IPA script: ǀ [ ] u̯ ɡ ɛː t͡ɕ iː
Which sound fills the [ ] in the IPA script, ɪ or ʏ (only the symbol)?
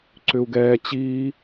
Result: ʏ